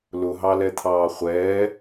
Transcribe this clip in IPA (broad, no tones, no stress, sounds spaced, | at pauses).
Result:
l ʊ ɦ ɑ l ɛ t̪ʰ ɑː χʷ ɛː